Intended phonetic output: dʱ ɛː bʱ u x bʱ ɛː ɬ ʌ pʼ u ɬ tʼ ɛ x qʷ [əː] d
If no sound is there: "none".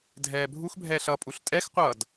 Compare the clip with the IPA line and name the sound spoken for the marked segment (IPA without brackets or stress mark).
ʌː